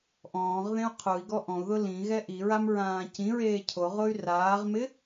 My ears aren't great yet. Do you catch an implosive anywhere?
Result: no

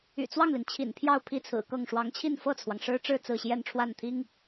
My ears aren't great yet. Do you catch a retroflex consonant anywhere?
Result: yes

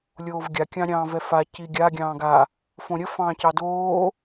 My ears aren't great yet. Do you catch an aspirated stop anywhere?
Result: no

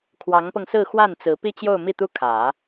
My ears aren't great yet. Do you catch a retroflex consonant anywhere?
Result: no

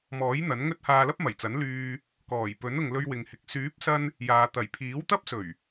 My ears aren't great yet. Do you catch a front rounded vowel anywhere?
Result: yes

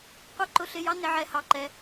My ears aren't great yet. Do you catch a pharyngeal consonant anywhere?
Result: yes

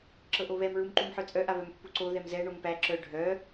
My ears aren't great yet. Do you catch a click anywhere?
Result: yes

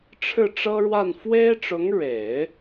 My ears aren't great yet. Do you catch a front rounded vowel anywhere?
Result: no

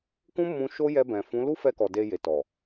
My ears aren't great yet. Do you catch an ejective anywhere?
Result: no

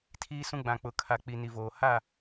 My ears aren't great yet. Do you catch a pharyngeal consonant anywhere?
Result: no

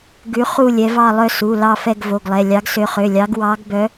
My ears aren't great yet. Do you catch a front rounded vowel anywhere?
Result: yes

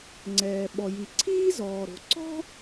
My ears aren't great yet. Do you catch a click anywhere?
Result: yes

